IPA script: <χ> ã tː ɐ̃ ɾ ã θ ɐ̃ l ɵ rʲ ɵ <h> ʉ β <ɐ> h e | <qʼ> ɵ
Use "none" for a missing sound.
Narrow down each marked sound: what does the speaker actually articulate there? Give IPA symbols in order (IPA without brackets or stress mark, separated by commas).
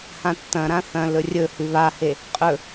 h, h, a, qʼ